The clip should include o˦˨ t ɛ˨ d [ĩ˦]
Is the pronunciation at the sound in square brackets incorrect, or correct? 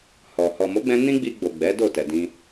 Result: incorrect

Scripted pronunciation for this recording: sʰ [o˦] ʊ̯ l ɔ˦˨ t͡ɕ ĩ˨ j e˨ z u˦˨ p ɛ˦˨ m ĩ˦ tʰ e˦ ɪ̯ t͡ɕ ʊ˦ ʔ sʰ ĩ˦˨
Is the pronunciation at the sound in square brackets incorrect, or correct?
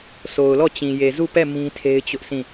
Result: incorrect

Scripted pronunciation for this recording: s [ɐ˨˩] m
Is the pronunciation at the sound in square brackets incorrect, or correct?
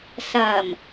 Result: correct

